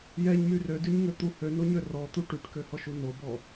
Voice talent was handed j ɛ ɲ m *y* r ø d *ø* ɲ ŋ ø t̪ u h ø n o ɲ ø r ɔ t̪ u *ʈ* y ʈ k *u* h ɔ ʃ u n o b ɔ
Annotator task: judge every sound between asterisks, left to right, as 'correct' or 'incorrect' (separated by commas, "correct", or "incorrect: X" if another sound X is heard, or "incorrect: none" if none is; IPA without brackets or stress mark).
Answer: correct, incorrect: y, correct, incorrect: ø